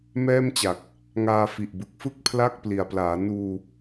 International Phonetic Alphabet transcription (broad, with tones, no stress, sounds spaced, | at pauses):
m ɛː˥˩ m t͡ɕ a˨˩ k̚ | ŋ aː˧ f i˨˩ ʔ b ɯ˨˩ k̚ f ɯ˥˩ k̚ pʰ l a˥˩ k̚ p l i˨˩ a̯ p l aː˩˦ n uː˧